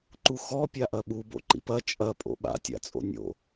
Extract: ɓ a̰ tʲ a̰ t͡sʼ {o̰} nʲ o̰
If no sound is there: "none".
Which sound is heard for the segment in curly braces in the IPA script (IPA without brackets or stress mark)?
o̰